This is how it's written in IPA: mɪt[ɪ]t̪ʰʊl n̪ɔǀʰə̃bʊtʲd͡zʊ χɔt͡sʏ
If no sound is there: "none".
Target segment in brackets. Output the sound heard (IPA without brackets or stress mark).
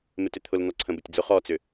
ʏ